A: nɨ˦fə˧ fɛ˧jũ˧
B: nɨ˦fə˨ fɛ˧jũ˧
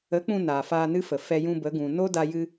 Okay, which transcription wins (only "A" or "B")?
B